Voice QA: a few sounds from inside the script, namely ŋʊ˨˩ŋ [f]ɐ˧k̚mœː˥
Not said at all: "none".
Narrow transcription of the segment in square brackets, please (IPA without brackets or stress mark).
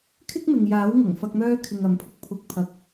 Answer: f